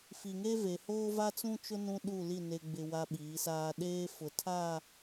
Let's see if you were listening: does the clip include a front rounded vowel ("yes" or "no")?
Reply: no